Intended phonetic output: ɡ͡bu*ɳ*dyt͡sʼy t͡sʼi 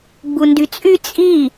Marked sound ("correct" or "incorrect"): incorrect